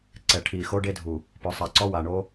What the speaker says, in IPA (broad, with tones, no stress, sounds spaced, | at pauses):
ǀ ɛ˨ ʈʰ iː˨ x o˦ ɖ e˦ dʱ u˨ | p ʊː˨ sˤ a˨ ǀ ɔ˦ w a˨ ɳ o˦